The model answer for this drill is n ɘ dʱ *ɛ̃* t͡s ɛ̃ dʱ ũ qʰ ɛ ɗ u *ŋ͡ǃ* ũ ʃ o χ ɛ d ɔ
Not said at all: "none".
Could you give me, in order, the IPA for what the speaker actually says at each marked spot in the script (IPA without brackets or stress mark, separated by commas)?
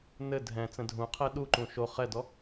ɛ̃, ǃ